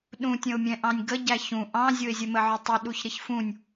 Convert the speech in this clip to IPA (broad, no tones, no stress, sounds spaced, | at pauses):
ɗ ũ tʲ ə̃ ʊ̯ mʲ ɛ̃ ʔ ɑ̃ nʲ ɡ ə ɟ æ ç ũ ʔ ɑ̃ zʲ ʊ ɪ̯ zʲ ə m ə ʕ ʊ tˤ ʊ ɗ u ç ɾ ɪ ç f ũ nʲ